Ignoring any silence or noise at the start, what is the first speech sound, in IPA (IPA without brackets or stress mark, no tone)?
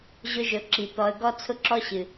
ʑ